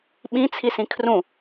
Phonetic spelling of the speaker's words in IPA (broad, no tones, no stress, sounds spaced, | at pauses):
ɓ ĩ t͡sʰ i s ĩ kʰ r ũ